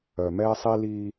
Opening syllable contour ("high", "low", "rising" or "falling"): low